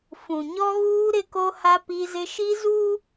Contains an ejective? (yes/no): no